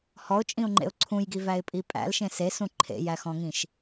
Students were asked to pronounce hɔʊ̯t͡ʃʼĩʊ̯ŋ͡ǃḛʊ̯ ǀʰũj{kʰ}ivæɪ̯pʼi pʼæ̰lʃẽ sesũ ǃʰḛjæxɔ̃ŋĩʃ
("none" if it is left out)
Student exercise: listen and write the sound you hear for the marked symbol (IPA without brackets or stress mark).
ɡ